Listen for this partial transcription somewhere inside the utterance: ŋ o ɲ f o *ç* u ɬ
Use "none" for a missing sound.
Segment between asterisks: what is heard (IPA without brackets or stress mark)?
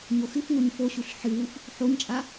ɕ